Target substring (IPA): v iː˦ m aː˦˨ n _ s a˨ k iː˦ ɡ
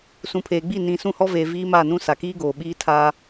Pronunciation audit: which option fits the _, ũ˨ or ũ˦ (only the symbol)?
ũ˦